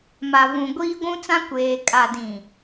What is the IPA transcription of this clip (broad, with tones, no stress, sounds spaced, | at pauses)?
m a˨ v ũ˨ ɡʷ iː˦ ɡʷ ũ˦ t͡s ã˦ kʷ eː˨ kʼ a˨ d ĩ˨